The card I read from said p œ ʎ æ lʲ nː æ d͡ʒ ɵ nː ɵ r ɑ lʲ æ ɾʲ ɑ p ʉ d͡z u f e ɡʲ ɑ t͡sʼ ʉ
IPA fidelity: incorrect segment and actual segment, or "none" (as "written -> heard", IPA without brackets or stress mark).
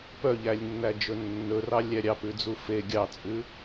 none